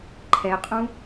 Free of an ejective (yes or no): no